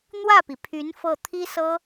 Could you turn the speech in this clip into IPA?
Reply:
n̪wä˥˩pi˩pʰy˧˥n fɤ˥˩ t̪ʰi˥sɤ˥

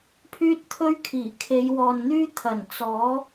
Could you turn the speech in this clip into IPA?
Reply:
pʰyː˥t̚t̪ʰɵ˥ɥkʰiː˨˩ kʰe˨˧jwɔː˨nn̪yː˥ t̪ʰɐ˨˩n t͡sɔː˨˥

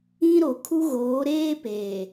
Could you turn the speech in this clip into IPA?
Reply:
ĩ˦ɾo˨ kʰu˦ɣoː˨˦ɾeː˦ peː˨

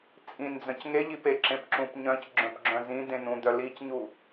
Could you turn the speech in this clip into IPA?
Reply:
t͡sʼĩnd͡zœ̃c ŋeʎipeǁẽp ǁũpɲœ̃c ɡ͡ǁœ̃pɡ͡ǁœ̃zĩ d̪ẽnũd̪œ licɲu

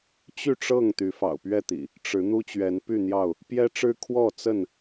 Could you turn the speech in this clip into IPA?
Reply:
t͡ɕy˥˨ʈ͡ʂɤ˥˨ŋ t̪y˨˦fɑ̰˨˩ʊ̯pɥɛ˥˨t̪ḭ˨˩ | ʈ͡ʂɻ̩˨˦ n̪u˦t͡ɕɥɛ˨˦npy˥˨n̪jɑ˥˨ʊ̯ | pjɛ˦ʈ͡ʂɻ̩˦ kʰwɔ˥˨ t͡sə˥˨n

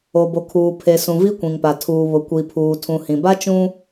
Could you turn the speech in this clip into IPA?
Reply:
o˨bo˨kʰuː˨ pʰe˨ sũ˨vi˦kʷĩ˨ŋpa˨ tʰuː˨βʊ˨ kʷi˨pʰuː˨ tʰũ˨hĩ˨ba˦ t͡ʃũ˦

